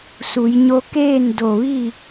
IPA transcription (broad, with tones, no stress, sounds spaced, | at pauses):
s u˩˧ j ɲ o˧˥ k eː˥˨ n d o˧˩ ʋ i˥˨